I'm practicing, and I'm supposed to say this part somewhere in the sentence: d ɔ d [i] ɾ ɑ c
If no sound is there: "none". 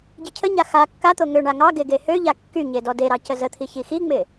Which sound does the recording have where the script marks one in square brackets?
e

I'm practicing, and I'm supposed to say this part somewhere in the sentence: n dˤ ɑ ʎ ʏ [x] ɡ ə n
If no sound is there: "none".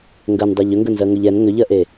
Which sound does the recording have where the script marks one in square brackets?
ŋ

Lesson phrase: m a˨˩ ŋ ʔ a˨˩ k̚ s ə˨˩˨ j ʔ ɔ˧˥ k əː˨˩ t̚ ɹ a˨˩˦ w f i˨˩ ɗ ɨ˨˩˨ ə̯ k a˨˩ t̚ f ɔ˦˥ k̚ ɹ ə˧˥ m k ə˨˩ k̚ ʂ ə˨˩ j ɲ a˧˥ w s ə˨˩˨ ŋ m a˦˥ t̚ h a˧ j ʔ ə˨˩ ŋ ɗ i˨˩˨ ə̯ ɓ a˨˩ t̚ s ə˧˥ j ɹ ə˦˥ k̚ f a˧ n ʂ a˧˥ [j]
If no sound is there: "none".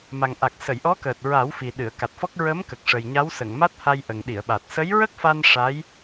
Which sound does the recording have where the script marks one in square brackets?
j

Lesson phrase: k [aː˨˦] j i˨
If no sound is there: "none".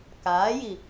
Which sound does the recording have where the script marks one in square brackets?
aː˨˦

